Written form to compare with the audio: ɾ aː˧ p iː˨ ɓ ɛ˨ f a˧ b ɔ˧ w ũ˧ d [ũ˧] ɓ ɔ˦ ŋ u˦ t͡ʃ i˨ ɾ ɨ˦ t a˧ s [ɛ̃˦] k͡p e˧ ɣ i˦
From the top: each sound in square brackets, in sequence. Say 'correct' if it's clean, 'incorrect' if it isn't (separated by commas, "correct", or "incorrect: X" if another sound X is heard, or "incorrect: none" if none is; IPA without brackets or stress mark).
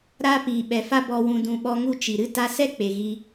correct, incorrect: ɛ˦